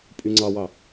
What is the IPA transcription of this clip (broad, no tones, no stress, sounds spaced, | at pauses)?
pʼ y ŋ͡ǀ ɑ w ɑ